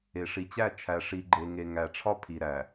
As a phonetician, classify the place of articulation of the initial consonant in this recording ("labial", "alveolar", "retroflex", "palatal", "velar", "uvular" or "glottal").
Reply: retroflex